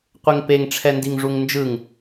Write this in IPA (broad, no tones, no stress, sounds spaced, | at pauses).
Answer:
qʷ e ŋ p e ŋ ʈ͡ʂʰ ɛ n d i ŋ ʐ u ŋ n d͡ʒ ɯ ŋ